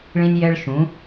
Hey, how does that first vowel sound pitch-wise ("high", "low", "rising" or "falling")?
high